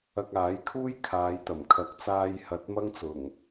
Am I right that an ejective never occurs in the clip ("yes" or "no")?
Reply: yes